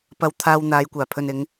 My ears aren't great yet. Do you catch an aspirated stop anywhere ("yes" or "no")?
yes